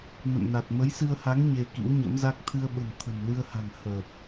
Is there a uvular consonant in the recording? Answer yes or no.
no